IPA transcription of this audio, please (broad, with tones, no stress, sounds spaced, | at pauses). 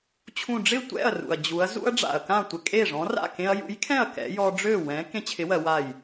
t͡ɕʰ ũ˧˩ ɖ͡ʐ ɪ˥˩ tʷ ɛ̰˥˩ ɐ̯ r ṵ˩ ɐ̯ d͡ʑ u˩˧ ɐ̯ z ṵ˦ ɐ̯ ɖ͡ʐ a̰˩ ɐ̯ k ã˥˩ tʷ ɪ˧˩ kʼ e˥˩ ʐ ɔ̃˨˥ r a̰˥˩ k ẽ˦ ɐ̯ j ṵ˨˥ j kʰ ɛ̃˥˩ ɐ̯ k ɛ̰˨˥ j ɔ˦ ɖ͡ʐ ø˥˩ w ɛ̃˨˥ k ẽ˦ t͡ɕʰ ɪ˨˥ w ɜ˩˧ w a˧˩ j